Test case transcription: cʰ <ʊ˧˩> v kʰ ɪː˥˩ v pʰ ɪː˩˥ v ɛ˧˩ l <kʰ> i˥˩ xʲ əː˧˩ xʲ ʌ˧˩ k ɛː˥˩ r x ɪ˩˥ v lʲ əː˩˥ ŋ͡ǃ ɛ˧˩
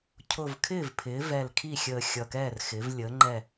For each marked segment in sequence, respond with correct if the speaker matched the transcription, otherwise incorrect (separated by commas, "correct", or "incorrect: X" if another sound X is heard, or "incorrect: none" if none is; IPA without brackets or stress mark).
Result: correct, correct